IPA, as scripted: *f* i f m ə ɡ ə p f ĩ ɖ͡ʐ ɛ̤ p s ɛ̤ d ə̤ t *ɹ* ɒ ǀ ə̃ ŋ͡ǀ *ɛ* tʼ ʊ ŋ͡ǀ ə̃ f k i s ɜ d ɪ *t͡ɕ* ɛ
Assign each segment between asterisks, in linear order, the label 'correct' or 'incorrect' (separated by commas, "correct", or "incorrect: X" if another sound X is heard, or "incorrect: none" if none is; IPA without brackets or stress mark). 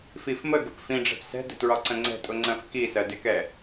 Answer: correct, correct, incorrect: ɛ̤, incorrect: k